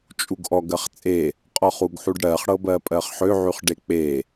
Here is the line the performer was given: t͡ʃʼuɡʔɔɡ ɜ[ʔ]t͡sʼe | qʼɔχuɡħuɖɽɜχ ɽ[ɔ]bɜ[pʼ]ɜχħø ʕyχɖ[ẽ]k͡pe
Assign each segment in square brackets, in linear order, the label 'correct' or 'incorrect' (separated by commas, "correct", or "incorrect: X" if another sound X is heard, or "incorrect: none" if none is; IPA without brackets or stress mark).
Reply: incorrect: χ, incorrect: ɤ, correct, incorrect: e